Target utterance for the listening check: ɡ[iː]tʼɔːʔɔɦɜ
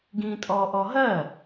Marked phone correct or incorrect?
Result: incorrect